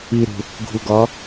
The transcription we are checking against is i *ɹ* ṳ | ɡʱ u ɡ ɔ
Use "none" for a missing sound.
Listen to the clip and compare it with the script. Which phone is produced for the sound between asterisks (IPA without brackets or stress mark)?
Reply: ɾ